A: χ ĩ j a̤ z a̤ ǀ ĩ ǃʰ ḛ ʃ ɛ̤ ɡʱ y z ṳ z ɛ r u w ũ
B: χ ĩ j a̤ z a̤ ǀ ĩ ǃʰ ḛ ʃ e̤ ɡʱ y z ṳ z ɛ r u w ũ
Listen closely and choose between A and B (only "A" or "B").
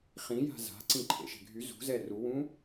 A